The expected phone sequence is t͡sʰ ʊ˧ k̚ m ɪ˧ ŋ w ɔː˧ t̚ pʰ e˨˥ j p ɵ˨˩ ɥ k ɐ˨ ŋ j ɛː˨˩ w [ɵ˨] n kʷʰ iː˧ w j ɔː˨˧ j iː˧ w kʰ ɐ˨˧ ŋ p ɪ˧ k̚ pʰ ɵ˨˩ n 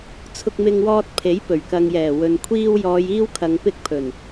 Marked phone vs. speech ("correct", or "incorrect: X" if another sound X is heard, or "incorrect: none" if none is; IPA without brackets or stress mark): correct